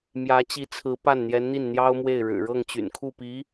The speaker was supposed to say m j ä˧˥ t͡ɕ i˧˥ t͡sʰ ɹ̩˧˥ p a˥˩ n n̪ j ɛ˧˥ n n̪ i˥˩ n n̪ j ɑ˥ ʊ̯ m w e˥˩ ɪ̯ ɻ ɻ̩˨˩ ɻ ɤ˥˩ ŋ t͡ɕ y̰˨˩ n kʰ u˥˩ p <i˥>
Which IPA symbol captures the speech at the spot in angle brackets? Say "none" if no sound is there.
i˧˥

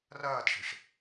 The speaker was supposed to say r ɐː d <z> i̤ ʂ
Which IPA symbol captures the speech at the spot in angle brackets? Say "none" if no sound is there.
ʂ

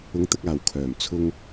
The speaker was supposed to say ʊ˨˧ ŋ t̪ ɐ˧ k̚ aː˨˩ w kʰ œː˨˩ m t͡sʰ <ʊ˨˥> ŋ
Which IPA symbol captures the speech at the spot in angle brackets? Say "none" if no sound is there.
ʊ˧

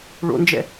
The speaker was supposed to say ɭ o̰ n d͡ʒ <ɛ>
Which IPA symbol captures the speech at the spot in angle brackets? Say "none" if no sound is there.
ɛ̰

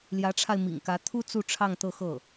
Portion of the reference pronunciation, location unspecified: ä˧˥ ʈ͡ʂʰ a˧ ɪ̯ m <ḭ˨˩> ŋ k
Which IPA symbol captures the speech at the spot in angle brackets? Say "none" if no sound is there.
ḭ˨˩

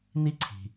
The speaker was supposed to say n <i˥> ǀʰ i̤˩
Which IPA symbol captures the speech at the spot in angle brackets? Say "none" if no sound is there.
i˥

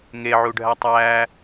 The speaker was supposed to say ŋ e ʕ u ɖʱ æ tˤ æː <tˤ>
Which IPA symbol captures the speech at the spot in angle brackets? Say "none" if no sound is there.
none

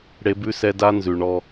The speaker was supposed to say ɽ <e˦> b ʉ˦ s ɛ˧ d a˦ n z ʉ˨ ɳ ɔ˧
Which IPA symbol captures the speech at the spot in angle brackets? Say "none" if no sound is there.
e˦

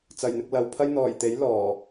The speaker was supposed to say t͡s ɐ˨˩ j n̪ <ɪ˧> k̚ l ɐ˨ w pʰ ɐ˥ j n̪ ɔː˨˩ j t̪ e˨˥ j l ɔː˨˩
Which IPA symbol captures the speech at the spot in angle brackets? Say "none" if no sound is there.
ɪ˧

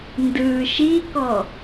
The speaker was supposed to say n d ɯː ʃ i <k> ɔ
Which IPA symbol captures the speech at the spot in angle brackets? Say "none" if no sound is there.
k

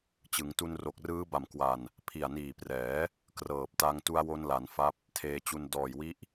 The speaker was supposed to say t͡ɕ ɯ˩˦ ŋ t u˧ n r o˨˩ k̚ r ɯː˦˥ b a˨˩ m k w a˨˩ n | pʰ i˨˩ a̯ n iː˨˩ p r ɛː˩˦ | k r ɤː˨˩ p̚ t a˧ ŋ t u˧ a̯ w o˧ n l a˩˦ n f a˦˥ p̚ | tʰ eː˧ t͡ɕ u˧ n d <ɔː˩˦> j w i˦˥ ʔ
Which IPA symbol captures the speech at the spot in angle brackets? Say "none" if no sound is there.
ɔː˨˩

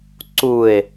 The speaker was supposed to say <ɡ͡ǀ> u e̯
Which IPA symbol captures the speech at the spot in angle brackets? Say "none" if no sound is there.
ǀ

